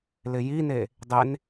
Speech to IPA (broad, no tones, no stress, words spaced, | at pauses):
lɪjine | dˤen